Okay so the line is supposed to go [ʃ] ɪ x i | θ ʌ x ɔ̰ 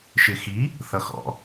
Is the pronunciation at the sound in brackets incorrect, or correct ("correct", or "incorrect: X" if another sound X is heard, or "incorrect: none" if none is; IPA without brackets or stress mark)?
correct